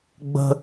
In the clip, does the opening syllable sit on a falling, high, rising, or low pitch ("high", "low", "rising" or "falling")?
high